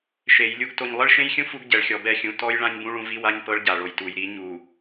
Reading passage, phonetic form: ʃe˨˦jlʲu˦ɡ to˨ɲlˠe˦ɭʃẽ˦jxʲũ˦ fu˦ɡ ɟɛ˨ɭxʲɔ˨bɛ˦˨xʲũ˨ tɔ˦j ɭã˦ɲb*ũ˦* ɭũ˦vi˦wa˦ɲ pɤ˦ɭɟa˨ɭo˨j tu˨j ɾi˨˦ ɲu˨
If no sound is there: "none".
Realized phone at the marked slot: ũ˦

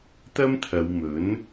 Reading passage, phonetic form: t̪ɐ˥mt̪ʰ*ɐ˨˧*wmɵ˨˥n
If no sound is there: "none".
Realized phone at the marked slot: ɐ˨˧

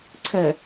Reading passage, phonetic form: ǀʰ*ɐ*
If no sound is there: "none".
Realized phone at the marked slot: ə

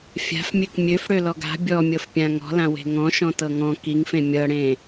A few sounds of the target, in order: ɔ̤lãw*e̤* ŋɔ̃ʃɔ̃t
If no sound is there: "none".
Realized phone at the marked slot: e̤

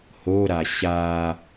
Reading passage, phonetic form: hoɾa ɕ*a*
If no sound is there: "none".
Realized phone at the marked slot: a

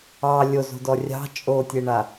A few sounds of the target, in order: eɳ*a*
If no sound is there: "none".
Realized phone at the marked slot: a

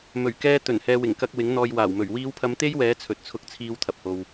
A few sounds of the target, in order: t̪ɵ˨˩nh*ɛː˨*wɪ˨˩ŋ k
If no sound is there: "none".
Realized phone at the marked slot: ɛː˨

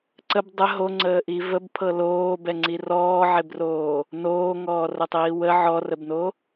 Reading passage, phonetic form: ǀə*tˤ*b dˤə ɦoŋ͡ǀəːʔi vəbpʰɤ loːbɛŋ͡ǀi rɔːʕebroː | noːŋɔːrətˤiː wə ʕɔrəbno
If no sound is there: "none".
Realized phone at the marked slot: none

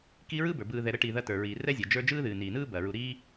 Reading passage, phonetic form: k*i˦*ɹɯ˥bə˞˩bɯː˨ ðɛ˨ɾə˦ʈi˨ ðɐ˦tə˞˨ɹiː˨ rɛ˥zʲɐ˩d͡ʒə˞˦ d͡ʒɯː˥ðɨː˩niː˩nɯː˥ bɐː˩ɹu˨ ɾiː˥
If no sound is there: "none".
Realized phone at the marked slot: i˦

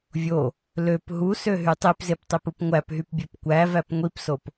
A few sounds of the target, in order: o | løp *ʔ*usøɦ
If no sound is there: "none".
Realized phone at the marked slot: ɦ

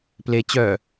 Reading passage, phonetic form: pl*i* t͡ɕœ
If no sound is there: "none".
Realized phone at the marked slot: e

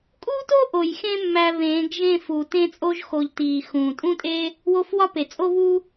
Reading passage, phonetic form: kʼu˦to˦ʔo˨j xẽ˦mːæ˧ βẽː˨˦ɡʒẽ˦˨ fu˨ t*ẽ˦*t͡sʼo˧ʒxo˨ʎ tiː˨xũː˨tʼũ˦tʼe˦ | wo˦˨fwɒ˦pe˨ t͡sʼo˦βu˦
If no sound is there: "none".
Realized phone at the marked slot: ẽ˧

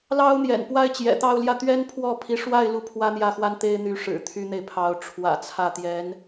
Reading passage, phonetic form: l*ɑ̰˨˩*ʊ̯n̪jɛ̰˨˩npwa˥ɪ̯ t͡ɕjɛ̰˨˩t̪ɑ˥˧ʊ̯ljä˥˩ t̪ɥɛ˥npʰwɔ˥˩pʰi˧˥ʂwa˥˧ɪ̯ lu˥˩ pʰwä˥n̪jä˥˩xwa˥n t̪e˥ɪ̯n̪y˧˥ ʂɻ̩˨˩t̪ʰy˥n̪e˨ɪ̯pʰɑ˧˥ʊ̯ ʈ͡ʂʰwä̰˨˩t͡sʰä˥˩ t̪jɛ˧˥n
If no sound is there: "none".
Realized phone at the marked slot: ɑ˥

